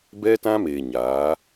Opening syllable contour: high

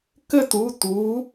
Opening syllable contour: falling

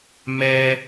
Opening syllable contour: high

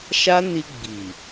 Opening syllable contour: high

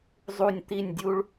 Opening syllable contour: falling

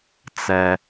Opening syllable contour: high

